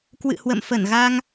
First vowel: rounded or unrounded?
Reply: unrounded